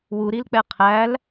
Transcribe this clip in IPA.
w u ɾ i l k͡p ɛ qʰ æ l

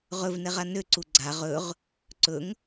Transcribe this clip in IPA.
ʁ ɵ v n ɛ ʁ a n ø ǀ u ɡ͡ǀ a ʁ ɵ ʁ | ǀ ɵ ŋ

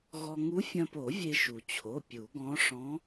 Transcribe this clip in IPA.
ɣ ɔ˧ ŋ u˧˥ fʲ ɐ̃˧ p o˨˩˦ vʲ e˧ ʃ u˩ t͡ɕʰ o˩˧˩ pʲ u˨˩˦ ɡ ɔ̃˧˥ ʂ ɔ̃˧˥

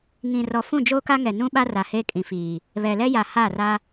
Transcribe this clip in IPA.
ŋ ĩ˨ r ɔ˨ f ũ˦˨ d͡ʒ oː˦ k a˦ ŋ ɛ˨ n ũ˦ ɓ a˦ r a˨ h e˦ kʼ ĩ˨ f iː˨ | β ɛ˨ l ɛ˦ j a˨ h a˦˨ r a˦

